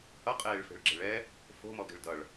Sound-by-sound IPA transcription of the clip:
h ʌ qʼ eː ɭ f e̤ ɭ ɡ͡ǁ e̤ ɭ ɛ | f o̤ m ɔ ɡ e̤ ɭ d ʌ ɭ

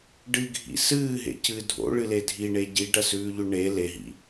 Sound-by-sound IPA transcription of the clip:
ɖ ɨ ɡʱ ḭ s ɨː ɦ ḛ c ɨ dʱ o̰ ɭ ɨ l e dʱ i ɳ e ɟ i ɖ ɐ s ʉː ʎ ʉ ɳ e l e ɦ ḭ

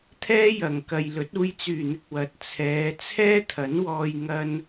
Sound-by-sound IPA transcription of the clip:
t̪ʰ ɛː˥ j ɐ˨˩ ŋ k ɐ˨ j l ɵ˨˥ t̚ uː˧ j t͡s yː˨˩ n̪ ɪ˨ k̚ w ɐ˨˥ t̚ t͡sʰ ɛː˨˧ t͡sʰ ɛː˥ t̪ʰ ɐ˨˥ n w ɔː˧ j ŋ ɐ˥ n

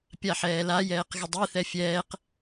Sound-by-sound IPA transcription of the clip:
pʲ a ħ ɛː l a j ɛː q ɣ ə dˤ e θ ɛ fʲ ɛː q

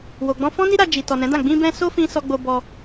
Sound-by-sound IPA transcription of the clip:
w o˨ ɡ͡b ɔ̃˧ f ɔ̃˦ n i˦ ɾ a˧ d͡ʒ i˨ t ɔ˨ n ɛ̃˨˦ d ã˦˨ ɡ͡b ĩ˧ b ɛ̃˧ s o˦ f ĩ˧ s ɔ˧ ɡ͡b o˧ b ɔ˧

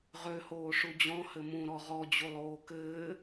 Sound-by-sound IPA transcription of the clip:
ʁ ø h oː ʂ u d͡ʑ ɔ̃ h ɘ m ũ ɾ ɔ ʁ ɔ d͡ʑ u lˠ oː k ɘː

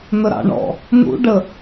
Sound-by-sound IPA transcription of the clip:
n̪ ə ɾ ɑ̰ ɳ ɔ̰ | n̪ ṵ ɖ ə

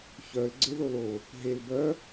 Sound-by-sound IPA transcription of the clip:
ç œ l ɡ͡ǀ e ð o l o | ɦ e l b œ

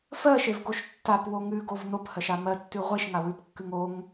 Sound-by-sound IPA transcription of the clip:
f ɜ ʃ e v ɡ o ʃ tː a p w o ŋ ʉ ɡ o v n o p h ɜ ʃ a m ɜ tː ʉ ʁʷ e ʃ ŋ a w ʉ p kː ʉ ŋ o ŋ

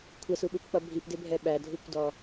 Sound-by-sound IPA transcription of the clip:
kʷʰ ɛ s u ɓ u p k͡p ʌ bʱ i p d ɪ bʱ ɛ ɓ æ dʱ u kʷ d ɔ

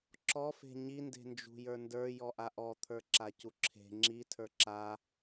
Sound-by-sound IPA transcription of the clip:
ǁ ɔ f e̤ ɲ i n d e̤ n d͡ʒ ṳ j ə˞ n d ə˞ j ɔ ʔ a ʔ ɔ t̪ʰ ə˞ ǁ a c u ǁʰ e̤ ŋ͡ǁ i tʰ ə˞ ǁ a

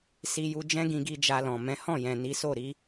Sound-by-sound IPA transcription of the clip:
s i˧ j u˧ d͡ʒ ɛ̃˦ ɡ ĩ˧ ɡ i˧ d͡ʒ a˧ l ɔ̃˨ m ɛ̃˨˦ h ɔ̃˦˨ j ɛ̃˨ n i˨˦ s o˦˨ ɾ i˧

